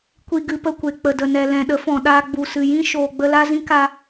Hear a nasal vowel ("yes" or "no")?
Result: yes